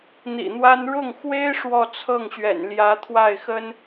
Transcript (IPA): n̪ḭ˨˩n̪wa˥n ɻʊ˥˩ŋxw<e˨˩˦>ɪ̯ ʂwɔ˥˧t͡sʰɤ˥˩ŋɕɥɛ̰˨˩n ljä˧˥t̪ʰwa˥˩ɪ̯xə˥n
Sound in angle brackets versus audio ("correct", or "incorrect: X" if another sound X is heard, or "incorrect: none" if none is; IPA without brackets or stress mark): incorrect: e˥